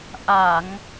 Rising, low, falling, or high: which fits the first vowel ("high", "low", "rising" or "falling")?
low